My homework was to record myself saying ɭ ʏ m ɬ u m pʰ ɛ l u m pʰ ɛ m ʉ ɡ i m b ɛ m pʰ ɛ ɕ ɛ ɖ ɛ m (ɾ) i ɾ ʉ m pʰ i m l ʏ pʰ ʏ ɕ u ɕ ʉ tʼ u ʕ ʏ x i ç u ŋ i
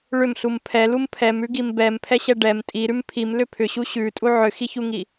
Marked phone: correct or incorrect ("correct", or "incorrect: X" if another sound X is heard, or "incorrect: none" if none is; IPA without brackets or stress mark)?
incorrect: tʼ